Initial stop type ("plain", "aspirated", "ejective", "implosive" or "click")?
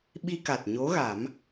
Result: implosive